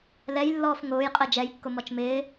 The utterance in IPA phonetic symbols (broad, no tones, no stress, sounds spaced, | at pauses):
l ɛ j lː ɔː f ŋ ʊː j qʼ ɜ d͡ʒ ɛ j kː ʊ m ɔ t͡ʃ m ɪː